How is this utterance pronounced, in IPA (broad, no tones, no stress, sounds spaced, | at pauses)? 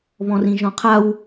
β ɔ̃ r ĩ ʒ ɔ̃ qʰ a w